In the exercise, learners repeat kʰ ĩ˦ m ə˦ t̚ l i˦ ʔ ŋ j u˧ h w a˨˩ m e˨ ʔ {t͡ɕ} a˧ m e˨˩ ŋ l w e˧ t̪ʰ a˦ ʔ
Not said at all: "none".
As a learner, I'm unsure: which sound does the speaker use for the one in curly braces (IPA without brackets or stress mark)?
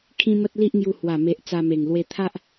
t͡s